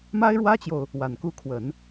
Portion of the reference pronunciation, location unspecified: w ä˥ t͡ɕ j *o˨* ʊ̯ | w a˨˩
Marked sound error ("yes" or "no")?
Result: no